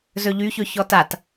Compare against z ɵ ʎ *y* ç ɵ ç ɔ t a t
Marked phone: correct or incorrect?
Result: correct